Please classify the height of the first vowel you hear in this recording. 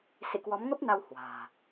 high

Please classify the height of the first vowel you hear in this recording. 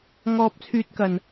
mid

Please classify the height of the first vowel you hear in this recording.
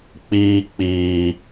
high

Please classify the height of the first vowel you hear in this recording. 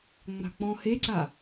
low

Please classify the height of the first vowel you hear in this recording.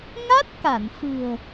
low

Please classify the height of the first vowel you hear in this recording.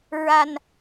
low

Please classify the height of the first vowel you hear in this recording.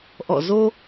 mid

